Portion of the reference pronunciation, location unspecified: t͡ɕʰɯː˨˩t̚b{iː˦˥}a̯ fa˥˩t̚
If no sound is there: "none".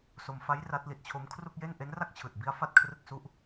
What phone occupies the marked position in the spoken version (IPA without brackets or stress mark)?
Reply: i˦˥